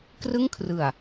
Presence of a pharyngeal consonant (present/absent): absent